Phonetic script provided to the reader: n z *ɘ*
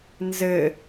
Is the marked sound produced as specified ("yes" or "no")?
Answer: yes